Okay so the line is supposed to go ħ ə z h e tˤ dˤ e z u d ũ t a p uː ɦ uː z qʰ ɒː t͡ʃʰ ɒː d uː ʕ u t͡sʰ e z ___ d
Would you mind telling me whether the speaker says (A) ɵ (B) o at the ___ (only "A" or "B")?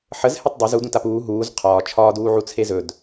A